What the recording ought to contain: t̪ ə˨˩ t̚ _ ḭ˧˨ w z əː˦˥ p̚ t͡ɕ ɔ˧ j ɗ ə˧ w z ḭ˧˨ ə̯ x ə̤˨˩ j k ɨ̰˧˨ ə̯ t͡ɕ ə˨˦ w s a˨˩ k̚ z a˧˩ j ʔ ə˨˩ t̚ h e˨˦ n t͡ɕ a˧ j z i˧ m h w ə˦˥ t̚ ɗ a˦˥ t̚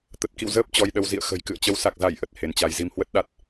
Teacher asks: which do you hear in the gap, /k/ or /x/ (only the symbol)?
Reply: k